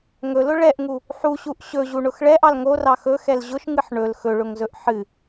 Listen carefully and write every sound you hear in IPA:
ŋ ɵ l ʊ ɭ ɛ ʔ ŋ u | ħ u ɕ u ʔ ɕ ɵ ʑ u ɳ ʊ x ɭ ɛ ʔ ɑ l ŋ o r ɑ x ɵ x ɛ l ʑ ʊ ʃ ŋ ɨ ħ ɳ ɵ l x ɵ ɭ ʊ ŋ z ɵ ʔ ħ ɨ

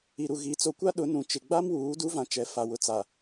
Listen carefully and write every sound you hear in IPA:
i˨ ɾ u˨ ɣ i˨˦ t͡s o˨ kʷ a˦ ɗ ʊ˨˦ n ũ˨˦ t͡ʃ ɪ˨ ɡ͡b a˦ m w uː˨˦ d u˦ v ã˨ t͡ʃ ɛ˨˦ f a˨ w ʊ˨ t͡s a˨

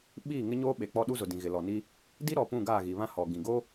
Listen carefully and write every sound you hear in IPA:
ɓ iː˦˨ ŋ ɪ˦ ɲ oː˦ ɓ e˨ k͡p ɔ˦ ɗ u˦ z ʊ˨ d ĩ˨ ɣ ɪ˨ l ɔ˨ n i˦ | d i˦ ɾ ɔ˨ p ũ˦˨ ɡ aː˦˨ ɣ i˨ β ã˦ h ɔ˨ ɡ ĩ˨ ɡ o˦

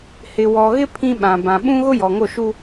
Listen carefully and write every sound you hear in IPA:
h ɪ˨ w ɔ˨ ɣ ɪ˦ pʰ ĩ˦ ɓ ã˨ b ã˨ ɓ ũ˦ ɣ ʊ˦ j ɔ˨ ŋ o˦˨ ʃ u˦

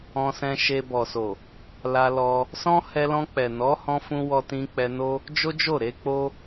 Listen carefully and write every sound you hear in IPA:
ɔ̃˧ s ɛ̃˧ ʃ e˧ b ɔ˨ s o˨ | l a˧ l ɔ˧ | s ɔ̃˦ h ɛ˧ l ɔ̃˧ k͡p ɛ˨ n ɔ˨˦ h ɔ̃˧ f ũ˧ w ɔ˧ t ĩ˧ k͡p ɛ˧ n o˦ | d͡ʒ o˦ d͡ʒ o˦˨ ɾ e˨˦ k͡p o˦

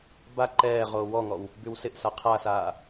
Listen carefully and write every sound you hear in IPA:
b a ǃ ɛː ʁ oː w ɔ ŋ ɔ w | b y w s ɪ ʔ s a qʰ a s aː

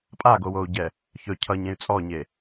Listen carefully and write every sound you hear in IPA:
pʼ a ɡ o w o u̯ ɟ ɛ | ç ɵ cʰ ʌ ɲ ẽ y̯ t͡sʼ ɔ ɲ e

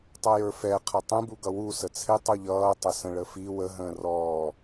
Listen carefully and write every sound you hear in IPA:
tˤ ʌ j ə˞ f ɛ qʰ ʌ tˤ ũ b u ɡ ʌ w u s ə t͡sʰ ɪ tˤ u ʎ ʌː tˤ ə s ə̃ ɭ ə f i w ə ɦ ə̃ː r ɔː

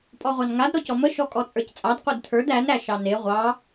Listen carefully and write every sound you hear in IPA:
pʼ ɔ ʁʷ ɑ n ŋ a d ɾ ɔ c ɔ m ə ʃ ɔ kʼ ɔ t͡sʼ ə˞ c t͡sʼ ɑ d qʷ e d tʰ ə˞ d æ n ɾ æ ʃ ɑ n e ʁʷ ɑ

